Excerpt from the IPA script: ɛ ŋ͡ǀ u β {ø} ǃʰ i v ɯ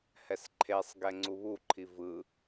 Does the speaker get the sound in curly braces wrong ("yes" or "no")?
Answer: yes